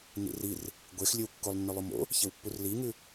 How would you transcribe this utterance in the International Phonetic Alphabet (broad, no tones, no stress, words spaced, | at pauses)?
nḭrir | ɡʷex lʲɵwkːolˠ nːɵlˠumo̰ | çewpːurliŋʉ